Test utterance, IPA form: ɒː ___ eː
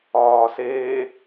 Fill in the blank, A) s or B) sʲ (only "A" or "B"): A